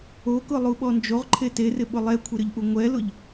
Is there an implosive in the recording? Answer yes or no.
yes